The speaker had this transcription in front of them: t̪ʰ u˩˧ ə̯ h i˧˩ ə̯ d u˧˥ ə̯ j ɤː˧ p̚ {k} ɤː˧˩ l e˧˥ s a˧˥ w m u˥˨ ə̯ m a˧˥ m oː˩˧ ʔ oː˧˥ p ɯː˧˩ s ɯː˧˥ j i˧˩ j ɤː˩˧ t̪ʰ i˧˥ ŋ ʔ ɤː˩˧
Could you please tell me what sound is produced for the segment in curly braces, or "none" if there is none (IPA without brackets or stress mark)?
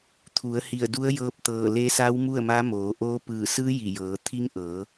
t̪